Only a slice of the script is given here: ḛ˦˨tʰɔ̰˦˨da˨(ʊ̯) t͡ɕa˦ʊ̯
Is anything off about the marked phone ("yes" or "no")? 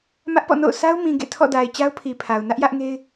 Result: yes